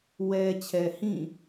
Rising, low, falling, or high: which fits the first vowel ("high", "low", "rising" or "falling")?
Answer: low